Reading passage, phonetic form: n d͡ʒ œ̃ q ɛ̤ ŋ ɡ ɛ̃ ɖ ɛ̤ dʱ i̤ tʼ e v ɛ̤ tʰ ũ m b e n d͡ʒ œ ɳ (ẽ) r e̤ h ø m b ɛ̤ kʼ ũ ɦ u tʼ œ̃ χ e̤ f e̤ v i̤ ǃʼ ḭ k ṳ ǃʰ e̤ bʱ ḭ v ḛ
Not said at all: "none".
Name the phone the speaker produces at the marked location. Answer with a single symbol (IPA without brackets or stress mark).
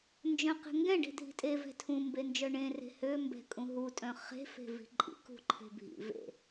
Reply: ẽ